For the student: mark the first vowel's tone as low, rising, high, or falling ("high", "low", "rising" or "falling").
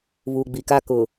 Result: low